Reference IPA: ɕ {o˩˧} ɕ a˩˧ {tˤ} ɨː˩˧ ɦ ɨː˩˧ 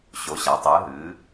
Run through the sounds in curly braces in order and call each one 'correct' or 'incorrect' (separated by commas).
correct, correct